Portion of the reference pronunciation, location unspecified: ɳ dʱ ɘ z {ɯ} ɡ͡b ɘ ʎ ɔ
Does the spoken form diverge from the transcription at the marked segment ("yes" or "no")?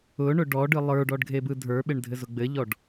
yes